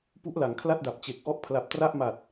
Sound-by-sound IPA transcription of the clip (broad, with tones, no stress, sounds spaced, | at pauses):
p u˦˥ ʔ l a˩˦ ŋ kʰ l a˥˩ t̚ d a˨˩ p̚ t͡ɕ e˨˩ k̚ ʔ ɔ˥˩ ʔ pʰ l a˨˩ p̚ t r a˥˩ ʔ m a˨˩ t̚